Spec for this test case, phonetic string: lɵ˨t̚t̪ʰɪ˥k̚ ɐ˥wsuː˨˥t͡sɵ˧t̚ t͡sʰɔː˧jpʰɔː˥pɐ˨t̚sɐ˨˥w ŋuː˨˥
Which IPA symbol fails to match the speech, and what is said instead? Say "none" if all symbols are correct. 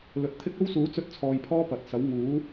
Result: none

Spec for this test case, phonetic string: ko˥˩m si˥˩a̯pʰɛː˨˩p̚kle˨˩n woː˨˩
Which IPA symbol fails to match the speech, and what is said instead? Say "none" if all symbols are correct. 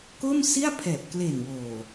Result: none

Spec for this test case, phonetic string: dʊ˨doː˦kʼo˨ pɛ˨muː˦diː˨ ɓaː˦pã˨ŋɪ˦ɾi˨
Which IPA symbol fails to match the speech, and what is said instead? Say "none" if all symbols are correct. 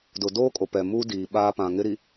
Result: none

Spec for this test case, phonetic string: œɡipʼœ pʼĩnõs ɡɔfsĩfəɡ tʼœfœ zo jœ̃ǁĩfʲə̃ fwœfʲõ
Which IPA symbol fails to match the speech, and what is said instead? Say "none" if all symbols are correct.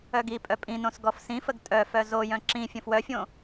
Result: none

